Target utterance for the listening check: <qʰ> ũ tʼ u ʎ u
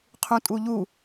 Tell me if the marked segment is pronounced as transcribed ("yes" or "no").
yes